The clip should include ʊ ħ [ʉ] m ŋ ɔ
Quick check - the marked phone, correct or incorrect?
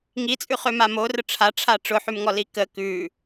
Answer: correct